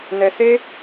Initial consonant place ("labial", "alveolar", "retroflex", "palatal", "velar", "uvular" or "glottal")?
alveolar